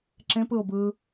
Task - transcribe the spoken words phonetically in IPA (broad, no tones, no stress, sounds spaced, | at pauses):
ǁ ẽ p ɯ ʊ̯ b ɯː